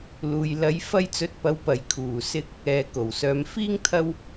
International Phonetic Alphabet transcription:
luː˨j lɐ˨˧jfɐ˧jt͡sɵ˨˥t̚pɐ˨˧w pɐ˨˩jkʰuː˨˩sɪ˧k̚ | ɛː˨ko˨˩wsœː˨˧m fiː˥ŋt̪ʰɐ˥w

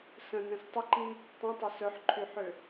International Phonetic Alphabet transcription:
sə̃nɛ̃s tˤəǃĩ | tˤĩtˤɛ sœħǃʰyħʏ

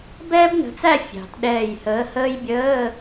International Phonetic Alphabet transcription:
bɛː˥bnə̤˨˥t͡sæ˥˧ fʲɑ̤˩t ɗɛː˧˩jhəː˨˥həː˥j bʲəː˧˥˧

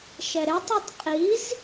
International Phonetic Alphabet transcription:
ʃɛɾetˤɛtˤ qʼiz

